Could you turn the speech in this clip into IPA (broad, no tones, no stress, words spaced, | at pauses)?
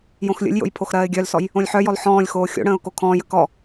jõxlʲə̰lʲjo̰j pʰoxɾɜːɪ̯ɡʲœlsɔj | õlʲħœjɔl ħɔ̃ːlʲxoː xʲo̰ɽə̃ːʊ̯ kokʰɔ̃ːjə kɔ